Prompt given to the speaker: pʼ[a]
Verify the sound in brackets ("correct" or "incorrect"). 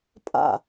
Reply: incorrect